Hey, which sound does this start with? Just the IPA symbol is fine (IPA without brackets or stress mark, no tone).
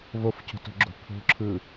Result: v